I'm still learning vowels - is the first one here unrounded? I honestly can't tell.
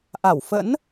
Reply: yes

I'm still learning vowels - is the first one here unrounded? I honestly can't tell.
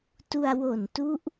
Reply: no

